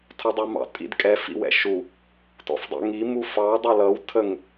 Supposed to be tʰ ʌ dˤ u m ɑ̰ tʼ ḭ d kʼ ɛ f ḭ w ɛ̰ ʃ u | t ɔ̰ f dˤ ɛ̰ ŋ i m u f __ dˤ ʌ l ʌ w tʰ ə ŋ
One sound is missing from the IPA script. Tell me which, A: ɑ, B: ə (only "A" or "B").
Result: A